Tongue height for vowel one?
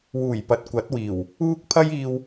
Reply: high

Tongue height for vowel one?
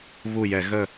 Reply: high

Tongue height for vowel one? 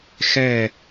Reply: mid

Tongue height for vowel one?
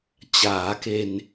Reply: low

